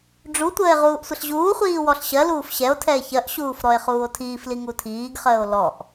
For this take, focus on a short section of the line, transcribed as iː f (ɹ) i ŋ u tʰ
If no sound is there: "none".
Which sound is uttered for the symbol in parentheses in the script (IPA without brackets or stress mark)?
l